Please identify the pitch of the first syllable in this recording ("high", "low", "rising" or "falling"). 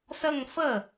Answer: falling